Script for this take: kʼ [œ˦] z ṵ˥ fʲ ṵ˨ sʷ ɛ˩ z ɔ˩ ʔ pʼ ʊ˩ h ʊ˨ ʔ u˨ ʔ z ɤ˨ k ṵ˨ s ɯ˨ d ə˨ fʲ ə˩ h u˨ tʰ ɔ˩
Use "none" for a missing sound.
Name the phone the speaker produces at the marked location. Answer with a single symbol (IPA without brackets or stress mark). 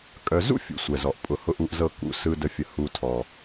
œ˨